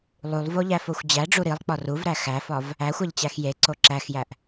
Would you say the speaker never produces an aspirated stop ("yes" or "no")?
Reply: yes